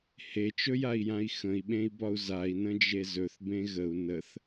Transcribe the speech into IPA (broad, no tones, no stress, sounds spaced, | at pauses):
h e t͡ʃ ɵ j a i̯ j ã i̯ x ə̃ i̯ ɓ ẽ i̯ b ɒ u̯ z a i̯ n ə̃ d͡ʒ e z ɵ θ b ẽ ɣ ə u̯ n ə θ